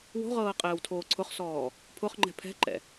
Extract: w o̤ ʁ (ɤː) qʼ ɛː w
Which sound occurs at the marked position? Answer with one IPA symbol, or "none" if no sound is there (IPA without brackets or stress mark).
ɤː